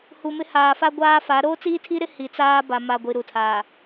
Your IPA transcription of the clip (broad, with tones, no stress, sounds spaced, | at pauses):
h u˨ m ɪ˦ h aː˨ f a˦ ɡʷ aː˦ f a˨˦ ɾ oː˦ t͡s iː˦ tʰ i˦ ɾ ɪ˦ h i˨ t͡s aː˦ b a˨ m a˨ ɡʷ i˨ ɾ u˨ tʰ aː˨